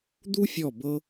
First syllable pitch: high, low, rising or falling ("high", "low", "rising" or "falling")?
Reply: high